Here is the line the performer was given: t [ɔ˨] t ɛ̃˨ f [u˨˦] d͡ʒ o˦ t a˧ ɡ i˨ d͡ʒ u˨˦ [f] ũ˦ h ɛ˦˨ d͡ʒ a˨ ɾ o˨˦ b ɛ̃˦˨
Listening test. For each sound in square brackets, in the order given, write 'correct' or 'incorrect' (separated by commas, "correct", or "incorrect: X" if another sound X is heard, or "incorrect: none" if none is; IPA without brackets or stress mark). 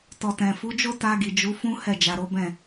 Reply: correct, correct, correct